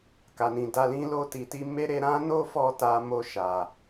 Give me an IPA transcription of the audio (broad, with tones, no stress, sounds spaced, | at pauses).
k a˨ n ĩ˨ d a˧ l ĩ˦ l o˧ t i˨ t i˧ m e˦ ɾ e˧ ɾ ã˦ n o˦ f ɔ˧ t a˧ m o˧ ʃ a˨